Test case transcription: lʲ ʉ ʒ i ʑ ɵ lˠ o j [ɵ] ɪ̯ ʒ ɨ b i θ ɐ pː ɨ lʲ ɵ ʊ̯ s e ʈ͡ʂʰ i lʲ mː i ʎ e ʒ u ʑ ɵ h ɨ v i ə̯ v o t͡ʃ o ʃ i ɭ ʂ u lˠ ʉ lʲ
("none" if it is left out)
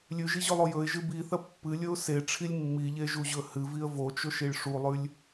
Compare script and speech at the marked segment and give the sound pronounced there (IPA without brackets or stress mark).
ɵ